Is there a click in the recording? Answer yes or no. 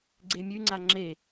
yes